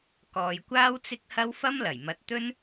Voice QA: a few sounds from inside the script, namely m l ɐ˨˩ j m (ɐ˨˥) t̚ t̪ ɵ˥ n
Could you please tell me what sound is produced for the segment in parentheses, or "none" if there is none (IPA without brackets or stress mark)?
ɐ˨˥